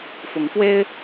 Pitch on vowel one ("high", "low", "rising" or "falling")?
rising